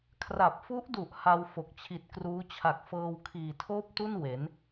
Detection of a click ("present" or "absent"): absent